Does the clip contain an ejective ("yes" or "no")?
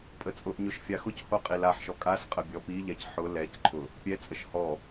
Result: yes